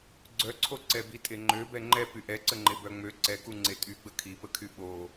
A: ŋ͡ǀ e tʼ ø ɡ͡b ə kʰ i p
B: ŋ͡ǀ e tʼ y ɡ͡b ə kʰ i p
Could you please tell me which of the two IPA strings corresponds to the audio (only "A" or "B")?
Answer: B